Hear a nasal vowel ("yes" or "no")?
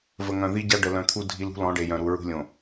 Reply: yes